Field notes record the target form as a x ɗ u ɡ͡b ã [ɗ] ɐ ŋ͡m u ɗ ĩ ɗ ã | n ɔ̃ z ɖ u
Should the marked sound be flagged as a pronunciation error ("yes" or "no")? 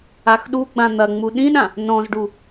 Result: yes